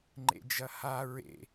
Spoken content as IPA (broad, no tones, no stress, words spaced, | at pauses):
ŋ͡ǃḛd͡ʒɐha ɹḛ